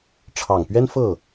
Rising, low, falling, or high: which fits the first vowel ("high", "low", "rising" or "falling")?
low